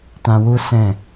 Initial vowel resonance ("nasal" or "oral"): nasal